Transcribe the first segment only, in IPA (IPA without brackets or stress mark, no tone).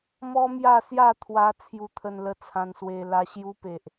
m